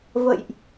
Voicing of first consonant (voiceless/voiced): voiced